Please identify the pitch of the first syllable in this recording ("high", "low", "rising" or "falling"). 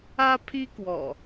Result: high